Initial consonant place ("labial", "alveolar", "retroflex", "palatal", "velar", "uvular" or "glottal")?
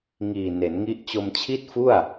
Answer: velar